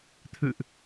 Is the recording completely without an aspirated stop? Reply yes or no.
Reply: no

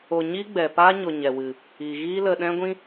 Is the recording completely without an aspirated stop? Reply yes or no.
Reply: yes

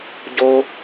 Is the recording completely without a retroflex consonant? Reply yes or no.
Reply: yes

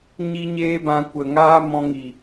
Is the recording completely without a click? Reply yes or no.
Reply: yes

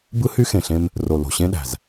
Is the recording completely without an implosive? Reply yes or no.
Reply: no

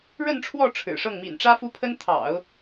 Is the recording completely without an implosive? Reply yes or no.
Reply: yes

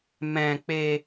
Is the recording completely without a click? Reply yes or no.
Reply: yes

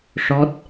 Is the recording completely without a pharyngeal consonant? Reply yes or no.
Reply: yes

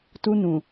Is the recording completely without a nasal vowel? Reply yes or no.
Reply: no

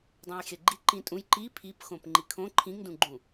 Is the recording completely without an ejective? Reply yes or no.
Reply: no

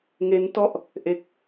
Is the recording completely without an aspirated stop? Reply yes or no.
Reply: yes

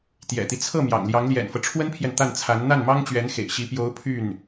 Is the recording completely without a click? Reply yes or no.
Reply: yes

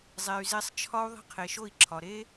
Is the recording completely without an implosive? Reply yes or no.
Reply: yes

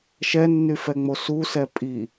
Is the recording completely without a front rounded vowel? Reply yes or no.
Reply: no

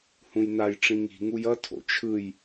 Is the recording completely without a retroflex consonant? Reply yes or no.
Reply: no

